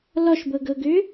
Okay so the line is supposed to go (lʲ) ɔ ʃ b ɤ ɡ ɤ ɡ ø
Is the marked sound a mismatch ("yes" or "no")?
yes